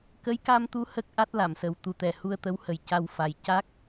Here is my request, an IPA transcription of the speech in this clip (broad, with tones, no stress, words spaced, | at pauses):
kə˧˥jka˧mt̪u˧˥ hə˦˥k̚ʔa˦˥t̚la˨˩˨msə˨˩w t̪u˨˩t̪ɛ˨˩ hu˧ə̯t̪ə˧˥whə˨˩j ca˧wfa˨˩j ca˦˥k̚